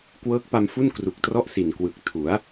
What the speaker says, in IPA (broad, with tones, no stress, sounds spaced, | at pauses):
k w ɤː˦˥ k̚ p a˧ m f u˥˩ n k r u˨˩ k̚ t r ɔ˥˩ ʔ s i˨˩ n k w ɯ˨˩ k̚ tʰ u˩˦ a̯